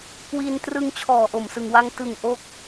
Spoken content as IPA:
k w i˧ n t r ɯ˧ ŋ t͡ɕʰ ɔː˨˩ ʔ o˨˩ m s ɯ˨˩ ŋ w a˧ ŋ t ɯ˨˩ ŋ ʔ o˦˥ k̚

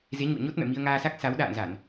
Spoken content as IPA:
z e˨˦ ɲ ṵ˧˨ ə̯ ɲ o˦˥ t̚ m ɛ̰˧˨ m i˧ ə̯ ŋ aː˧ s a˦˥ k̚ s a˨˦ w ɗ a̰ː˧˨ n z a˧˩˨ n

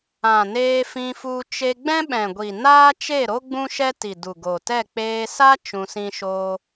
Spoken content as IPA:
ã˨ n eː˧ f ĩ˧ f u˧ t͡ʃ e˧ ɡ͡b ɛ̃˦ ɓ ɛ̃˨ ɡʷ i˨ n aː˦ t͡ʃ e˦˨ ɾ o˦ ɡ͡b ũ˦ ʃ ɛ˦ t i˨ d u˨ ɡ o˨ t ɛ˦˨ k͡p eː˧ s a˦ t͡ʃ ũ˧ s ĩ˦ ʃ oː˦

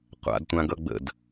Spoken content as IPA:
qʷ a̰ d tʷ ã ɡ ʌ ɡ͡b ə̰ d

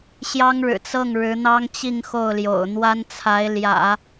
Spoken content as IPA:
ɕ j ɑ˥ ŋ ɻ ɻ̩˨˩ t͡s ɤ˥˩ ŋ ɻ ɻ̩˧˥ n̪ ɑ˥ ŋ t͡ɕ i˥˧ ŋ x o˥˩ ʊ̯ l j o̰˨˩ ʊ̯ n̪ w a˥ n t͡sʰ a˧˥ ɪ̯ l j ä̰˨˩˦

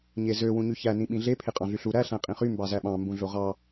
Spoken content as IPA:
ɲ e z ø w ũ ɲ y ç æ n ĩ ɓ ĩ ɮ e pʰ e qʼ ɑ̃ ɮ y ɬ u ɾ æ ɬ æ̃ qʼ ĩ χ y m b ɑ z æ ɓ ɑ̃ m b ũ ɮ o ʁ ɑ

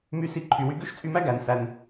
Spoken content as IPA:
m y˧ s i˧ ǃʰ y˨ w y˧ ɡ ø˦ ʃ t͡sʼ y˧ m æ˦ ɡ æ˨ n s æ˧ n

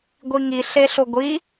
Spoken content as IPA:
ɡʷ i ŋ i ɬ e ɬ o ɡʷ i

